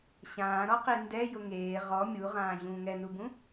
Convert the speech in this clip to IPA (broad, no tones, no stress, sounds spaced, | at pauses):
ɕ ãː ɾ ɔ q i n d ɛ j ʊ ŋ eː ʁ ɔ mʲ u ʁ ãː ʑ ũː ŋ ɛ n u b ũ